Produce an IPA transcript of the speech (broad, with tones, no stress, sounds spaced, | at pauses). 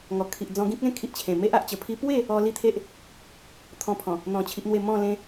ŋ ɔ˨˩ kʰ i˨ ʔ d͡z ɔ̃˧ ɡ ĩ˦ k̚ l ẽ˥˧ kʰ i˨ ʔ t͡ɕʰ ẽ˨˩ m e˦ ʔ a˦ ʔ t͡ɕ ə˨˩ pʰ i˦ p w e˥˧ | ɔ˧ l i˥˧ t̪ʰ e˦ ʔ | t̪ʰ ɔ̃˧ pʰ ɔ̃˨˩ | n̪ ɔ̃˧ t͡ɕʰ i˦ ʔ n̪ w e˥˧ m ɔ̃˥˧ l ẽ˧